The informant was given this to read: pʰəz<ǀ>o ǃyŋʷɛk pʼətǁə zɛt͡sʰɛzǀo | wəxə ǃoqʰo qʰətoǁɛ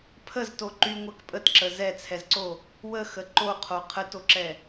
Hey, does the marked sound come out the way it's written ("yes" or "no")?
no